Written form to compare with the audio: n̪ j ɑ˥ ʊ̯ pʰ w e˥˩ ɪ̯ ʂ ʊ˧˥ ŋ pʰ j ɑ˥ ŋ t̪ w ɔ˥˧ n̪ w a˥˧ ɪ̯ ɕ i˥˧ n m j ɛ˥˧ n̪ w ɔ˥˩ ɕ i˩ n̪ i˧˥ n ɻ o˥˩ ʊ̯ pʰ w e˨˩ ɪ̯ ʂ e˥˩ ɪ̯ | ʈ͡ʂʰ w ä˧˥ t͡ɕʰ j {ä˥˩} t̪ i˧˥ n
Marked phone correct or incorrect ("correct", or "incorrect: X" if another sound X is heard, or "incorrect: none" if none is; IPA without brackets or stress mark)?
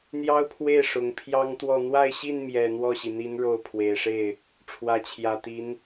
incorrect: ä˨˩